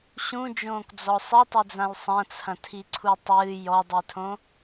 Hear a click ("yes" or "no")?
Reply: yes